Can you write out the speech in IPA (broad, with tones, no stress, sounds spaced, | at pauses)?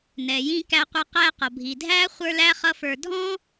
n ɛ˨ j ĩ˧ k æ˧ qʷ ʌ˧ q æ˧ q ʌ˨ bʱ i˨ dʱ æ˦ χʷ ə˞˦ l æ˦ χ ʌ˦ f ə˞˧ dʱ ɔ̃˦